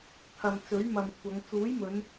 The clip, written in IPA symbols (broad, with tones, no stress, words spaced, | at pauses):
t̪ʰɐ˨mt͡sɵ˨˥ɥmɐ˨mkʷʰɐ˨˧ŋ t͡suː˨˥jmɵ˨˧n